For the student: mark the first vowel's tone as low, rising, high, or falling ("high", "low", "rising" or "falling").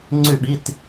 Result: falling